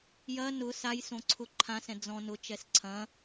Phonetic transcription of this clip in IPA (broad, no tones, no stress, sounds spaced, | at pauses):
j ɐ n ʊ s a j s õ ǀʰ ʊ ǃʰ ã s ɛ̃ d͡z ɔ̃ n ʊ t͡ʃ ɛ s ǀʰ ɐ̃